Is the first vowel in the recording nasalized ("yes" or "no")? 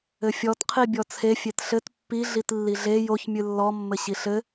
no